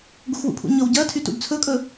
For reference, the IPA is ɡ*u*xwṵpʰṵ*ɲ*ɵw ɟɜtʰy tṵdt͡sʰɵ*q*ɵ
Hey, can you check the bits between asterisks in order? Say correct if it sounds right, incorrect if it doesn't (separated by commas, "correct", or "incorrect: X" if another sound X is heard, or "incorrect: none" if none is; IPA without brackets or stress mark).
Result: correct, correct, incorrect: kʼ